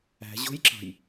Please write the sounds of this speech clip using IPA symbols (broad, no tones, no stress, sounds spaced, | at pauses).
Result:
æ̤ ʑ o̤ j ǁ ɑ̤ j